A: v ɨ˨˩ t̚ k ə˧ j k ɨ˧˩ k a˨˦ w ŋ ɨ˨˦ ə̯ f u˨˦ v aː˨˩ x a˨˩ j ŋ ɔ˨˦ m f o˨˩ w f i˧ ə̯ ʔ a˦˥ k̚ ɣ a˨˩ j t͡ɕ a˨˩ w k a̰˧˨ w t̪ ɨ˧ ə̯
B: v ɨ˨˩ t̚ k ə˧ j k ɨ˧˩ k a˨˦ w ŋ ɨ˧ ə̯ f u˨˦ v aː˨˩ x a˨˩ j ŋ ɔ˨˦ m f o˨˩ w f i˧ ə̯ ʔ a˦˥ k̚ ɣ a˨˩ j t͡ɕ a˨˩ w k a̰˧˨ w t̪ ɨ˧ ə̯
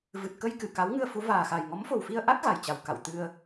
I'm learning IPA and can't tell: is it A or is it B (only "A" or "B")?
B